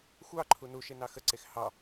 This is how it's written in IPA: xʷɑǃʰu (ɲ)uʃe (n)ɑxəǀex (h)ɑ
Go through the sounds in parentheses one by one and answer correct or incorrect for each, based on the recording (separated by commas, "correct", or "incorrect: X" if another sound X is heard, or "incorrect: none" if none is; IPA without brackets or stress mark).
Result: incorrect: n, correct, correct